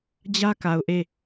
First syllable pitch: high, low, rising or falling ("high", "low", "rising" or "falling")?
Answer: high